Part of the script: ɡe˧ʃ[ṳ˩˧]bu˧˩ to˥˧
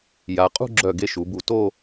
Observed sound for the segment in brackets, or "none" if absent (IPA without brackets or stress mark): u˩˧